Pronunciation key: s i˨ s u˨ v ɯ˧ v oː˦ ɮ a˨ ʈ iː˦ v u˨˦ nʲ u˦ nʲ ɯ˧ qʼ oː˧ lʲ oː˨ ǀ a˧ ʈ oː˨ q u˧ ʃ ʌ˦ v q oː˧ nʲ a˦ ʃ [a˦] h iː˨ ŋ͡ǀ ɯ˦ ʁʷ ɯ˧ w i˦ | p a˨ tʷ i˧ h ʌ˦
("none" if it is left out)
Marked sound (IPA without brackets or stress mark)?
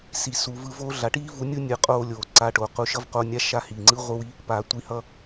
a˦